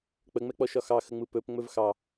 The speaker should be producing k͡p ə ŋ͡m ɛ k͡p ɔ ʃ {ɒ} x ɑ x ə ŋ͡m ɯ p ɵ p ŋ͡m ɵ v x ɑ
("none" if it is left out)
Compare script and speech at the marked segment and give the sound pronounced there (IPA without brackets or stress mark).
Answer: ɒ